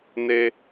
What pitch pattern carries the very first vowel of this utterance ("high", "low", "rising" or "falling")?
high